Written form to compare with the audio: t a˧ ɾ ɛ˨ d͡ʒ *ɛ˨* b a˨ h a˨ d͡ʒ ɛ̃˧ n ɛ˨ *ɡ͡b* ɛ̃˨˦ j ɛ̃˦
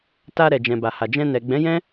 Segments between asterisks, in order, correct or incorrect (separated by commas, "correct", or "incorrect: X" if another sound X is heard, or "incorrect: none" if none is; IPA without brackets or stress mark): incorrect: ɛ̃˨, correct